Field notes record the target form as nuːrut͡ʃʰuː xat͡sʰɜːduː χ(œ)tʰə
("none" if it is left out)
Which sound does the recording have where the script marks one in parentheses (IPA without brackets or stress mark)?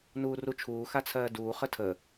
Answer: ə